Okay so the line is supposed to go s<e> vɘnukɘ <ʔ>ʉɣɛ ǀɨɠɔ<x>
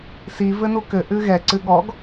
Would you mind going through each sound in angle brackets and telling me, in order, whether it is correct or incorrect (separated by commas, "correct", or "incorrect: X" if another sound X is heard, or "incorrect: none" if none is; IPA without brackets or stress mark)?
incorrect: i, correct, incorrect: ɡ